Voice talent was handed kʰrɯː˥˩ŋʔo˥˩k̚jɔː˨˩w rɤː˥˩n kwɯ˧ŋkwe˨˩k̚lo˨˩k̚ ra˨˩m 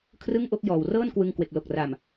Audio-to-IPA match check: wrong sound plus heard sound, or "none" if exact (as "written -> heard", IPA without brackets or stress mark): ɯː˥˩ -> ɯ˥˩